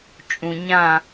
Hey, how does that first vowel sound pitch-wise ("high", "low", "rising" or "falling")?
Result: low